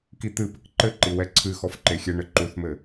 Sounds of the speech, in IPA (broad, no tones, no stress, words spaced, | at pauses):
kit̪ɨpɘk ǃɘǃi wɛǀʰɨxɔf ǃexʲɛɳɘ ǃuθmɘ